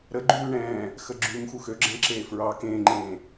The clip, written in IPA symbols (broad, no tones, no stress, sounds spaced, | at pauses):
ɾ ə ɡ͡ǃ ʉː ɳ ɛ̃ː | x ə ɡ͡ǁ ʉ m x u x ø ɡ͡ǁ ɛ̃ ǁ eː f ɹ ɑ k ẽː ŋ͡ǃ ẽː